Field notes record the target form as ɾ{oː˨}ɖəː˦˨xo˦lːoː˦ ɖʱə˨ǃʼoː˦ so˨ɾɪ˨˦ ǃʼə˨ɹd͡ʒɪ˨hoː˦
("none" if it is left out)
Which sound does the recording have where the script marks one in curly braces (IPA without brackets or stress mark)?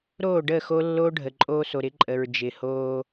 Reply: oː˦˨